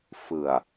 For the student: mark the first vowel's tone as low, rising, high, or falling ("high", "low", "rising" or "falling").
low